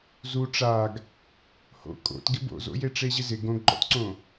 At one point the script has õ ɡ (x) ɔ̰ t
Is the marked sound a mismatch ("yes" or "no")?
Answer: yes